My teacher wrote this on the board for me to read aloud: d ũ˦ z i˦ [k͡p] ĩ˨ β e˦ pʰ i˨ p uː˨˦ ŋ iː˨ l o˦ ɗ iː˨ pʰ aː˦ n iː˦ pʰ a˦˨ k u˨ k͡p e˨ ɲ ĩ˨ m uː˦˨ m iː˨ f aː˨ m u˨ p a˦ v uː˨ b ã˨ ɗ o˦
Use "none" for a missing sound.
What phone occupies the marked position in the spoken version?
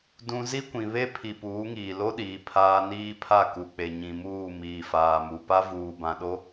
kʷ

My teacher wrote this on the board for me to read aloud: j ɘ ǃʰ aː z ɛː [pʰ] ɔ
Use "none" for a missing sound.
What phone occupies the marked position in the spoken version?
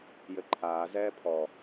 pʰ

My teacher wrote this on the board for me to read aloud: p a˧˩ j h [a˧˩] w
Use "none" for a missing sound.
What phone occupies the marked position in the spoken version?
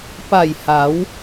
a˩˧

